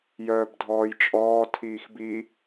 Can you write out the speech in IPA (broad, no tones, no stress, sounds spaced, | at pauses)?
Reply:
j œː b dʱ ɔː j t͡ʃʼ ɔː tʰ iː x b i